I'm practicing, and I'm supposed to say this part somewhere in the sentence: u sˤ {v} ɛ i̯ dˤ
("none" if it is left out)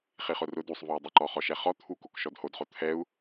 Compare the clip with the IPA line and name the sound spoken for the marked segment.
v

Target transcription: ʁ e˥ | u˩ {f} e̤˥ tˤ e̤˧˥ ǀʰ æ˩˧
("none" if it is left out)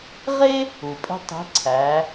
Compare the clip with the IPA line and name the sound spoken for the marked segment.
pʼ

